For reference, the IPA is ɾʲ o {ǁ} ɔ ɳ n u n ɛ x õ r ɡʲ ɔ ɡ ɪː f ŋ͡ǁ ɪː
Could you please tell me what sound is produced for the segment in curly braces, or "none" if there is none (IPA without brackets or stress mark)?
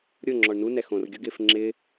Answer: ŋ͡ǁ